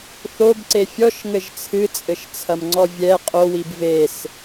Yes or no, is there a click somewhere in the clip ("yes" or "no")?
yes